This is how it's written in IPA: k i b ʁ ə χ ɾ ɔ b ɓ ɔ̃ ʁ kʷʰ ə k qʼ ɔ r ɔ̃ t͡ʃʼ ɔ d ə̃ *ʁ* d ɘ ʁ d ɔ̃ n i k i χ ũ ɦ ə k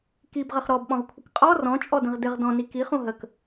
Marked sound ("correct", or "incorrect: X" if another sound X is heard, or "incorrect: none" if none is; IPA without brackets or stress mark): correct